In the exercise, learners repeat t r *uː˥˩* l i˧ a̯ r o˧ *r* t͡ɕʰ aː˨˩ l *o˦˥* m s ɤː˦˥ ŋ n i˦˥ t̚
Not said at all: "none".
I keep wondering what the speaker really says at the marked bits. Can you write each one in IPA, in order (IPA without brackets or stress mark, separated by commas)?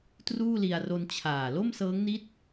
uː˥˩, n, o˥˩